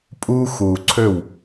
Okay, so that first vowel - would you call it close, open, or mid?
close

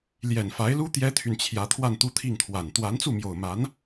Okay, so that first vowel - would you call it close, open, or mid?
mid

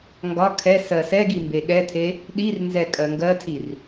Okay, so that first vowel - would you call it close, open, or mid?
open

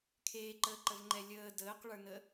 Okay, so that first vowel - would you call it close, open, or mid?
mid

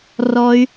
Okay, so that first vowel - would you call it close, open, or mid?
mid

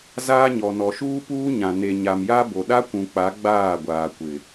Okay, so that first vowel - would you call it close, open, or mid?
open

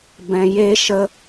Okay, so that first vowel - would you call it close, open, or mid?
mid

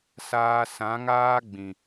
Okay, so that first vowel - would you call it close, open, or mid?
open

